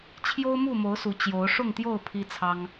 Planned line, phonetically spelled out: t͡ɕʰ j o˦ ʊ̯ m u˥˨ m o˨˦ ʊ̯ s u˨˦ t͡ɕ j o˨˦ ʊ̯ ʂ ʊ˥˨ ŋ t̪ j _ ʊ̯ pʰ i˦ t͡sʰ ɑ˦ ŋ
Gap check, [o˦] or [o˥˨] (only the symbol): o˥˨